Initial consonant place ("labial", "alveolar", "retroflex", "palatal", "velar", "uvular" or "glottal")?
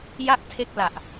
palatal